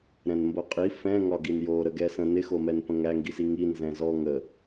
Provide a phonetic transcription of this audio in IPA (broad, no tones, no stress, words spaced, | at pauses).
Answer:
ɾɛ̃nmboqʼi fɛ̃ ŋɒɡinjo ɾəɡɛsə̃ nɪxomɛn pə̃ŋæŋɡisi ŋi nzɛ̃zɔ ŋə